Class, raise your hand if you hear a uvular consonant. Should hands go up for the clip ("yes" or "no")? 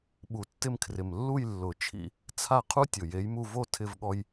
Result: yes